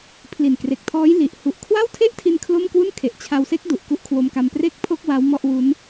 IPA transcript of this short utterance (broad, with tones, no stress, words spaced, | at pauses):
pʰli˨˩nkre˨˩k̚tʰɔː˦˥j li˨˩ʔ hu˨˩ʔkʰwa˥˩wtʰe˥˩ʔtʰi˧n kʰlo˥˩m kwu˥˩nkʰe˨˩ʔ t͡ɕʰa˧wse˦˥k̚ du˨˩ʔku˦˥ʔkʰwo˧mka˧m pre˥˩k̚pʰo˥˩k̚ wa˦˥wmɔ˥˩ʔwu˦˥n